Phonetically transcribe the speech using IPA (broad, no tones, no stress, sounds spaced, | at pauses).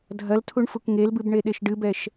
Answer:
dʱ ɐ l tʰ u ɳ f u k ŋ e l b ɨ b ɳ e ɗ e ʃ ɖ ɨ b ɛ ʃ